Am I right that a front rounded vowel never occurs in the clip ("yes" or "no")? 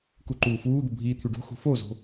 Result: no